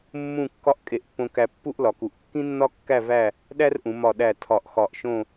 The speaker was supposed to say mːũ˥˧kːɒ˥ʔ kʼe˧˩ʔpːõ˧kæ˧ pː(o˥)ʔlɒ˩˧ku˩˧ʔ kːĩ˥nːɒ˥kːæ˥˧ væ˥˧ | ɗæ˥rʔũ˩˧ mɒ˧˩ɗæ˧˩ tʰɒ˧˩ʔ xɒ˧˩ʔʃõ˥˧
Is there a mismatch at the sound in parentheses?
yes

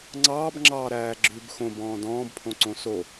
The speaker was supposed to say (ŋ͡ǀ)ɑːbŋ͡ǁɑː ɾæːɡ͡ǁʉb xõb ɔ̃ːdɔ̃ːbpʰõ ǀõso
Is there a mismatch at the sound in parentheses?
no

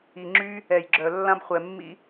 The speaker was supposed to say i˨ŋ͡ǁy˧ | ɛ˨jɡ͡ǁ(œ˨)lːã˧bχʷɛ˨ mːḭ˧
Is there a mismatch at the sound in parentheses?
no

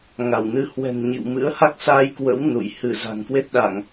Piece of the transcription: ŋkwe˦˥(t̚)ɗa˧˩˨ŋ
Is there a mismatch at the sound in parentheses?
no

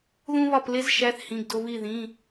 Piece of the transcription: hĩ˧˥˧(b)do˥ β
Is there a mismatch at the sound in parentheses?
yes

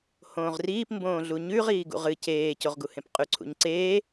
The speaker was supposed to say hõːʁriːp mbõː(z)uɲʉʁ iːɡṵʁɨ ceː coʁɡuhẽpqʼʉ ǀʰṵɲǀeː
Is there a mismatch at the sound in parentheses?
yes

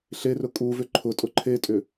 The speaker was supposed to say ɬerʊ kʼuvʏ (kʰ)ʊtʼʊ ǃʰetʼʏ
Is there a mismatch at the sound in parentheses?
yes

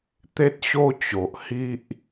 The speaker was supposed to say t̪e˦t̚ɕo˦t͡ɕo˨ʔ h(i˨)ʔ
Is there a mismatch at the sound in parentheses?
yes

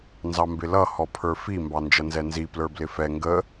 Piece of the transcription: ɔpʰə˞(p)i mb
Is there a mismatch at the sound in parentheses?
yes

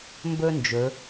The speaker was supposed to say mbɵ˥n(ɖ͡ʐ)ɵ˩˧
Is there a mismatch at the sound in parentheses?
yes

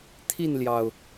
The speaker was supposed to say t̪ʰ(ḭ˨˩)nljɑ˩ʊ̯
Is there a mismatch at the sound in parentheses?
yes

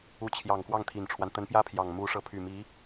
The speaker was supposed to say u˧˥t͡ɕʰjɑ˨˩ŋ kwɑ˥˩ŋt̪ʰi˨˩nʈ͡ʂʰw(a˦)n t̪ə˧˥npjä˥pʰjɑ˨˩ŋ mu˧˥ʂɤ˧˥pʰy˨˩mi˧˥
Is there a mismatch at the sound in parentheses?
no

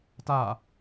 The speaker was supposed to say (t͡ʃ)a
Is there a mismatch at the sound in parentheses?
yes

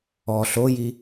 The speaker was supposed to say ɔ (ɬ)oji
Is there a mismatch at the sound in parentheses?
no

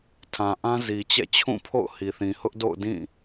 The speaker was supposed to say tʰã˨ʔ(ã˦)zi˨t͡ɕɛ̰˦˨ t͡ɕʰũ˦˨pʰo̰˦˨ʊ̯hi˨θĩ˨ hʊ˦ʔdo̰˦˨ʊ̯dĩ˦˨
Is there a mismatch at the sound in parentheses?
no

